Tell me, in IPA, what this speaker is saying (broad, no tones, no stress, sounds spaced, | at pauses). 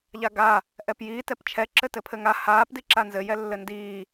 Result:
ʎ a ɡ a | ʔ ɛ p j iː t ɛ p t͡ʃʰ ɛ ǁ ɘ t ɘ pʰ ɘ ŋ a h aː p d i ǁ a n z ɘ j ɛ lː ɘ n d iː